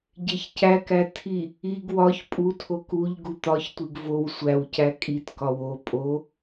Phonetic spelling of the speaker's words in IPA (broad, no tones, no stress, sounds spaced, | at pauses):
ɟ e ç c æ k æ tʰ i | i ɡ w ɒ ç pʼ u tʰ o k u ʎ ɡ u t̪ ɒ ç tʷ i ɡ v o w sʷ æ w c æ kʼ i t k ɒ w o pʼ o